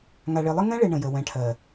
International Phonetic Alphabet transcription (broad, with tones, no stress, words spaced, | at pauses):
ŋa˨ɭe˨lˠə˦ ŋɛ̃˦ɭe˨ ɳə̃˨jə˨ wɛ̃˨ʈʰɜ˨